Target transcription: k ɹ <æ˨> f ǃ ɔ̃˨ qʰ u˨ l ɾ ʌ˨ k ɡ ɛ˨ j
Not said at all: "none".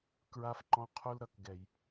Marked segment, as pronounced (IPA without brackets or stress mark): a˨